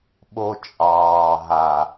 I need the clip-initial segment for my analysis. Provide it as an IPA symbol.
ɓ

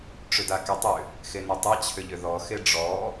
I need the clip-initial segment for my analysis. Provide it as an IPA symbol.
ʈ͡ʂ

